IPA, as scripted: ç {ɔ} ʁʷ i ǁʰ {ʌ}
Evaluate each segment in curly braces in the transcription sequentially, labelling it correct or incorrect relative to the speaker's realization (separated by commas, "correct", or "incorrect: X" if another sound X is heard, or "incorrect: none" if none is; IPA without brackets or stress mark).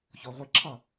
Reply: correct, correct